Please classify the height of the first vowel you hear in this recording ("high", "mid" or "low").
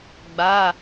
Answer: low